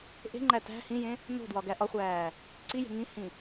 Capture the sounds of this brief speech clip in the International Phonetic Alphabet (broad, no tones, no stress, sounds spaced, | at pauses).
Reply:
ʔ e̤ ŋ͡ǃ æ t æ̤ h ĩ j ẽ | n o̤ d w ɒ ɡ æ ʔ ɒ χʷ æː | ǀ i j e̤ ŋ ĩ h ĩ